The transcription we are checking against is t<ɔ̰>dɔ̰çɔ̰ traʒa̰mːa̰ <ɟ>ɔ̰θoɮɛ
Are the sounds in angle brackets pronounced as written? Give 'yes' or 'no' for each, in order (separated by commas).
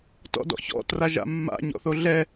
yes, no